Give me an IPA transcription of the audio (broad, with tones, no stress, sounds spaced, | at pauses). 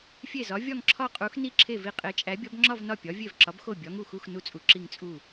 fʲ e˥˩ z ɒ˨˥ vʲ ɒ˥˧ ŋ ǁʰ ɒ˥˧ qʼ u˨˥ x n i˥˧ ǁʰ e˥˩ v i˥˩ qʼ e˨˥ t͡ʃʼ æ˨˥ bʲ ɒ˨˥ b ŋ͡ǁ ɒ˥˧ v n ɒ˥˩ pʲ ɒ˨˥ vʲ e˥˩ v ǁ ɒ˨˥ b x o˥˩ bʲ ɒ˨˥ ŋ u˥˩ x u˥˧ x n u˥˧ t͡sʼ u˨˥ ǁ i˥˧ ŋ t͡sʼ u˥˩